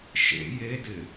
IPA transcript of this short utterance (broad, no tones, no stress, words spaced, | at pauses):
ʃḛ jedɪ